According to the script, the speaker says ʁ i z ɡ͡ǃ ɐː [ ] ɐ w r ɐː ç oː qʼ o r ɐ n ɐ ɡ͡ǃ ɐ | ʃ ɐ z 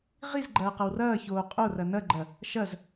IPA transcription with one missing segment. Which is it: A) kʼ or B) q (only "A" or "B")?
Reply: B